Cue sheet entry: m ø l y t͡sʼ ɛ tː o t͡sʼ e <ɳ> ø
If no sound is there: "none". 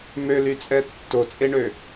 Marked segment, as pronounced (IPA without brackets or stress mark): ɳ